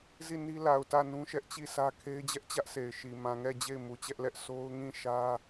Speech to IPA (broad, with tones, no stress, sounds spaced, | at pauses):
z i˦˨ n i˦ l a˨ ʊ̯ t ä˦˨ n ũ˦ ʃ ɛ˦ ʔ t͡ɕ i˦˨ s ä˦ kʰ e˦ ɪ̯ d͡ʑ ɛ˦ ʔ t͡ɕ ä˦ ʔ sʰ e˨ ɪ̯ ʃ i˨ m ã˨ ŋ ɛ˦˨ d͡ʑ e˦˨ ɪ̯ m u˨ t͡ɕ ɛ˦ ʔ l ɛ˦ ʔ s o˦ ʊ̯ ŋ ĩ˦˨ ʃ ä˦